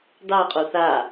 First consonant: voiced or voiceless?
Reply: voiced